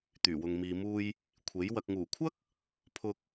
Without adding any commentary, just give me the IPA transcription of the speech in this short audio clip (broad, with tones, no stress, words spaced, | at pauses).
t̪yː˨˩wʊ˨ŋmiː˨muː˧j | kʷʰe˨˥j wɐ˨k̚ŋuː˨˩kʷʰɐ˥k̚ | pʰʊ˧k̚